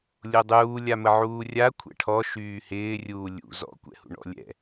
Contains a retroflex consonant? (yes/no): yes